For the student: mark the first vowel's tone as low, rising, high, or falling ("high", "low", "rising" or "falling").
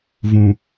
low